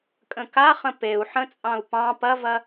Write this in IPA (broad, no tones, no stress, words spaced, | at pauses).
kʼə̃kaχə̃ peu̯ ħə̃t͡sʼɑ̃u̯ pɑ̃ pɐvɐ